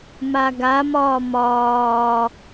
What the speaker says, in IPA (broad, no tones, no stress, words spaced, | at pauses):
maɡamɒː mɒː